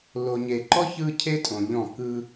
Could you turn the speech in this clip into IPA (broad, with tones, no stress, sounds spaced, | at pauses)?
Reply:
l o˨ ɲ e˨ ǃ ɔ˦ ç ɯ˦ cʰ e˦ tʼ õ˨ ʎ ɔ̃˦˨ k ɯ˦